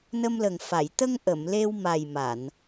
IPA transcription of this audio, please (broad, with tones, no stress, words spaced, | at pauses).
nə˧mlə˨˩ŋfa˨˩˨j t̪ə˧ŋ ʔə˨˩˨mle˧wma˨˩jma˨˩˨n